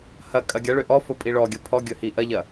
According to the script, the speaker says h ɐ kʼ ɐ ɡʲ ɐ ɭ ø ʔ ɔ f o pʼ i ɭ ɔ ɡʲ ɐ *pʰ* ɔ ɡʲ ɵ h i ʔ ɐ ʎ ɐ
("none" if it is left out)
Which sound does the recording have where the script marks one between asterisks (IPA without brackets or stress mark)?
pʰ